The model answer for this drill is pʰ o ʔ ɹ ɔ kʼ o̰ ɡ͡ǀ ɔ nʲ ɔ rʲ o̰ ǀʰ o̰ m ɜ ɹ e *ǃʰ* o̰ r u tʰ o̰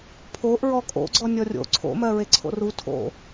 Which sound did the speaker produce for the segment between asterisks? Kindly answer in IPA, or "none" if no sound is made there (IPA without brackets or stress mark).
ǀʰ